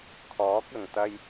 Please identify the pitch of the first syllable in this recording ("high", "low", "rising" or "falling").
rising